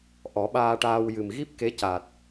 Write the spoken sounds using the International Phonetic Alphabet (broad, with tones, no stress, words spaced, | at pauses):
ʔɔ˨˩˦ɓaː˧ʈaː˧w jɨ˨˩mɣi˦˥p̚ke˧˥caː˨˩t̚